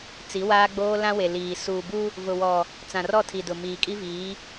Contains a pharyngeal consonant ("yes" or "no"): no